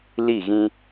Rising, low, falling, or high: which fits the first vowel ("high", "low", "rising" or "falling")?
falling